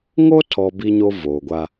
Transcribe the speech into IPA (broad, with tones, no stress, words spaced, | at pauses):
ŋo˦tʰɔ˨ bi˦ɲo˦voː˨ɡʷa˦